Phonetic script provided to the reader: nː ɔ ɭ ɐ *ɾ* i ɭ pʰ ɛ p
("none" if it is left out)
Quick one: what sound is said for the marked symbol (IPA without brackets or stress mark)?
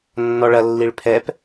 lː